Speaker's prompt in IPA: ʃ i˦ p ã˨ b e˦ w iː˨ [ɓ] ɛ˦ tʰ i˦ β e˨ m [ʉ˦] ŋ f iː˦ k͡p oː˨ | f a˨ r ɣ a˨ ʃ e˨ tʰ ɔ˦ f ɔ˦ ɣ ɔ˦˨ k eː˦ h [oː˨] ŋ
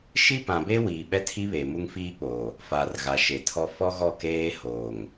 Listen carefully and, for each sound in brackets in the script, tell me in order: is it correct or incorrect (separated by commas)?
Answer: correct, incorrect, correct